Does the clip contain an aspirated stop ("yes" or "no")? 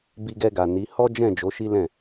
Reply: no